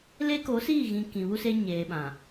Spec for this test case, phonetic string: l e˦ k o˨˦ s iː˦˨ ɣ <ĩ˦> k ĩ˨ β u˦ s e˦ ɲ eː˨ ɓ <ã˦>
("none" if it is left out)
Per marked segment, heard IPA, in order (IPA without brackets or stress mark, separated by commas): ĩ˨, ã˨